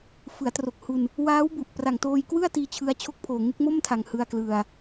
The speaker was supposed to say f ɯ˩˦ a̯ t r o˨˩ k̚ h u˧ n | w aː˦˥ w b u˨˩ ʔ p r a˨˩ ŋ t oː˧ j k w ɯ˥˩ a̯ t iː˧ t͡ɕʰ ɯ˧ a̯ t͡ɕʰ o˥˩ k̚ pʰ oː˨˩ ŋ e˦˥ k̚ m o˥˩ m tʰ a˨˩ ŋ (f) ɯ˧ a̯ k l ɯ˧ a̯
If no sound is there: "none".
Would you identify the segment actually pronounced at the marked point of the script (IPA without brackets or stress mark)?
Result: h